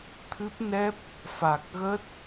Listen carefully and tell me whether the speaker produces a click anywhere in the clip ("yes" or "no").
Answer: no